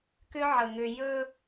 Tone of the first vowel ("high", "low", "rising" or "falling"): high